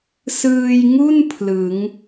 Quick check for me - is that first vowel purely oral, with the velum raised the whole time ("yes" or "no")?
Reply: yes